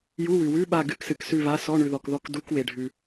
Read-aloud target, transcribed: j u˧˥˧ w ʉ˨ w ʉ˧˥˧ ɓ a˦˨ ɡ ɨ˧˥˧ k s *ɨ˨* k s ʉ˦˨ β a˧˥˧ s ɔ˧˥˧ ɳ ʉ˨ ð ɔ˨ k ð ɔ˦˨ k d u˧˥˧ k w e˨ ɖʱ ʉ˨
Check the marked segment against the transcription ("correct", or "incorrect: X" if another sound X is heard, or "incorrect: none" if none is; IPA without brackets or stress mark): correct